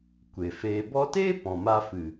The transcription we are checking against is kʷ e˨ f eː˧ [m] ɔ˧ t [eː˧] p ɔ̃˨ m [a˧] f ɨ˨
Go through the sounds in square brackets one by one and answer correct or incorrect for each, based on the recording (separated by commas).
incorrect, incorrect, correct